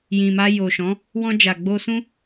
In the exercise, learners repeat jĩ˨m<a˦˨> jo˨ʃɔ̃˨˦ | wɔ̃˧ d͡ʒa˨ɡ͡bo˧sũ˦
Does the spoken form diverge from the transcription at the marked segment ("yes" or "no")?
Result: yes